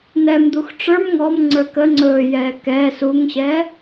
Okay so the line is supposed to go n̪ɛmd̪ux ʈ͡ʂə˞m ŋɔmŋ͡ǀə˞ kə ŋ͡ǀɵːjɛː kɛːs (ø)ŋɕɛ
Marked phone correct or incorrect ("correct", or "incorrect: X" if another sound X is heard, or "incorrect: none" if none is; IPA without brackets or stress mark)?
incorrect: u